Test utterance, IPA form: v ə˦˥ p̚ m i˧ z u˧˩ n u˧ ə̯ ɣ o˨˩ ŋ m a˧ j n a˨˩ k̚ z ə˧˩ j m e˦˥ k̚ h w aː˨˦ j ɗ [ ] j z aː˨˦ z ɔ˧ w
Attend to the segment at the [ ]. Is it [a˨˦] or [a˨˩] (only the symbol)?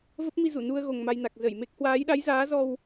a˨˦